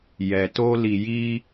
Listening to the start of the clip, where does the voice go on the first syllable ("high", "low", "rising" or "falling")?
low